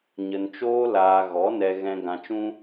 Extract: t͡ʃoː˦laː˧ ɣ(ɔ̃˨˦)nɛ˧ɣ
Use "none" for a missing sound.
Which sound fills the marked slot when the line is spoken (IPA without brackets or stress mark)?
ɔ˨˦